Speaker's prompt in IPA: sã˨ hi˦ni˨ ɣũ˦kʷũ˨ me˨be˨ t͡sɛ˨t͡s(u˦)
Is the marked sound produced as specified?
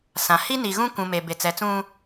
no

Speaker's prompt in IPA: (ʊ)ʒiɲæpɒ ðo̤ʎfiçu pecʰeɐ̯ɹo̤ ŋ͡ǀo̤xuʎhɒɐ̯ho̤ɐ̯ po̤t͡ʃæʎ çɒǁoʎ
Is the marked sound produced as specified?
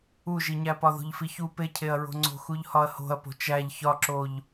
no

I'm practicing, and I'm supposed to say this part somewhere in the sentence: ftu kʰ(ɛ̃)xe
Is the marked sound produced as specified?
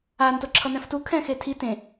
yes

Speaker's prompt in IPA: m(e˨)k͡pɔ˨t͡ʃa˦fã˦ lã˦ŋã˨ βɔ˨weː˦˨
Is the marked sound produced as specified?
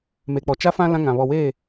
yes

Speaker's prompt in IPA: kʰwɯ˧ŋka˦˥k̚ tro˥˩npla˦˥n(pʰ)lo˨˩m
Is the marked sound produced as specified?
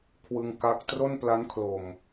no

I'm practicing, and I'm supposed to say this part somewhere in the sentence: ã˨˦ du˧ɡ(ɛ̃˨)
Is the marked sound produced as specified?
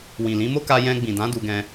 no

